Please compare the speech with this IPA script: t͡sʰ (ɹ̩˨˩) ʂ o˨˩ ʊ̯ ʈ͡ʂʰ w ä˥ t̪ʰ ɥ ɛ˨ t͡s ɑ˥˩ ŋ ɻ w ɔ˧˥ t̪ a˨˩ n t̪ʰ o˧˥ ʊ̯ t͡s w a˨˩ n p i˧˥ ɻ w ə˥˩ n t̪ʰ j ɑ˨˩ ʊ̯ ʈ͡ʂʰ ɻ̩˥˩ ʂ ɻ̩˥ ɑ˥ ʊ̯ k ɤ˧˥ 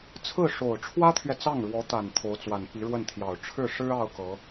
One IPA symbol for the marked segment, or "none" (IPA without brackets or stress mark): ɹ̩˥˩